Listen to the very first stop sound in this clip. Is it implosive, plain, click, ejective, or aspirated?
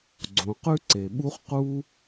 click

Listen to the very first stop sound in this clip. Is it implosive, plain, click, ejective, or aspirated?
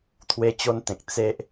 aspirated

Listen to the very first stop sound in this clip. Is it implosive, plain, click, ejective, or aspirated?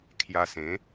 aspirated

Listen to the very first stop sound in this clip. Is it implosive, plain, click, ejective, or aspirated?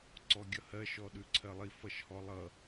click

